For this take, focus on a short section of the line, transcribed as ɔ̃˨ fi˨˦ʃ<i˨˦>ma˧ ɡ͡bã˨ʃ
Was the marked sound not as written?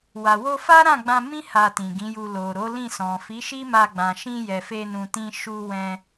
yes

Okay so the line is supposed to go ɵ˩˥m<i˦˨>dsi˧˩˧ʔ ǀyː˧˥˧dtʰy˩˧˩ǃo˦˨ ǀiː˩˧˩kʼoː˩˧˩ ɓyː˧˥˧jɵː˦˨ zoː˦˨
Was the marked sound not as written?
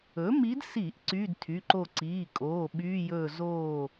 yes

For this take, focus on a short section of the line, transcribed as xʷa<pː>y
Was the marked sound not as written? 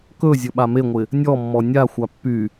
no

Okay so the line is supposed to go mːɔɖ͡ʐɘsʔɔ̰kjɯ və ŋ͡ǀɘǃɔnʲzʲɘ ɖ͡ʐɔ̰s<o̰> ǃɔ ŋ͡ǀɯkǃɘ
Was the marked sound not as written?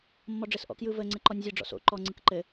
no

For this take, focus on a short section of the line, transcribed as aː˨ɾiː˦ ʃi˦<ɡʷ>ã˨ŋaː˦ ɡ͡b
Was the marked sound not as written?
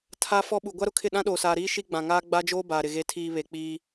yes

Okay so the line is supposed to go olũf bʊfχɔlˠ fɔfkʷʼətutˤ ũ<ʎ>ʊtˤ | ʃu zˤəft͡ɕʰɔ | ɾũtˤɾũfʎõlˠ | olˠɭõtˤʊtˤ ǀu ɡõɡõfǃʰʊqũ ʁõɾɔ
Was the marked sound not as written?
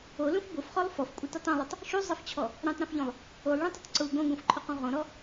yes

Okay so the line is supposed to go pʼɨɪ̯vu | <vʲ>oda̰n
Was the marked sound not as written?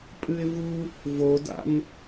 yes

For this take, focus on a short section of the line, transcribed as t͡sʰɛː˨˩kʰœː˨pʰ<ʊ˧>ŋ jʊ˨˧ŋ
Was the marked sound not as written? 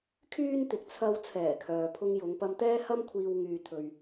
no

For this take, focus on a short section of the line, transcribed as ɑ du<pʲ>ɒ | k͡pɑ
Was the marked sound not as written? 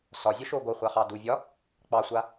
yes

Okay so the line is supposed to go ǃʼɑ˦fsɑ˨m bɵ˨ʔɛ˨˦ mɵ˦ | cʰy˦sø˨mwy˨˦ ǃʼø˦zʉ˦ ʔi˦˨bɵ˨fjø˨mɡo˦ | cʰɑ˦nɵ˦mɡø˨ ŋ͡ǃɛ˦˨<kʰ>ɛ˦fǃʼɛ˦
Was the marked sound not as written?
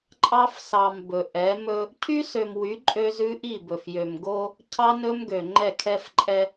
no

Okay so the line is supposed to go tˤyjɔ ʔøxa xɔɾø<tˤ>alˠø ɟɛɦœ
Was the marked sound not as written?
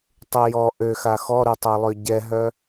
no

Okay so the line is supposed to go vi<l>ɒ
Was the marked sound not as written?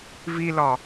no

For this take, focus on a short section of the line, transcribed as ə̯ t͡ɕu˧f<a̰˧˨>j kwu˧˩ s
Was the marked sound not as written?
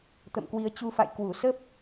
no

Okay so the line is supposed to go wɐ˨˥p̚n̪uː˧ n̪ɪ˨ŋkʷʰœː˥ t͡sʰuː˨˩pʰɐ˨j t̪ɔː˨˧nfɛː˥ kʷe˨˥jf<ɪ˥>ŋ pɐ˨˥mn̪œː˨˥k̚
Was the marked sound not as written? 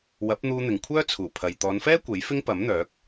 no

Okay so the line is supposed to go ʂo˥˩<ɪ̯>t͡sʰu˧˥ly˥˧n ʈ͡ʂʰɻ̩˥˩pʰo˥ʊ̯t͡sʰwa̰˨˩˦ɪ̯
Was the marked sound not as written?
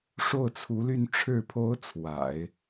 yes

